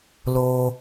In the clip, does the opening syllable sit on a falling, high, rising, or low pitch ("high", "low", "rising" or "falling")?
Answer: high